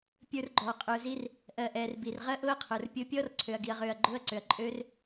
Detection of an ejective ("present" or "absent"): present